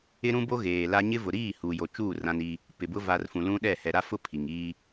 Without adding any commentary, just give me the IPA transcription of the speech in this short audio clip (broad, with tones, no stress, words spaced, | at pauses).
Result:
ɪ˦ɾũ˦bo˦ ɣeː˨la˦ ɲɪ˦ vʊ˨ɾiː˦˨ hu˨jo˨t͡ʃuː˦˨ rã˦ni˦ | pɪ˨ bʊ˦ va˨r fũ˨lũ˦ɗɛ˦˨ hɛ˨ɾa˦fʊ˦ pʰi˨ŋiː˦